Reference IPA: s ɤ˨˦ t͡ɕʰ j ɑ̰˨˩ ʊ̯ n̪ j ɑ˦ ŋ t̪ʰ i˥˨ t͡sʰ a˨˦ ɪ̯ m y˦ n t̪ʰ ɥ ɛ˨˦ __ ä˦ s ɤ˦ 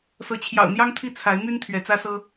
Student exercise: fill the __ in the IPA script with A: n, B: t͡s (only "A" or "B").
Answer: B